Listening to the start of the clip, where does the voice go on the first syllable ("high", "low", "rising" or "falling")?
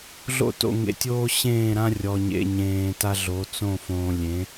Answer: falling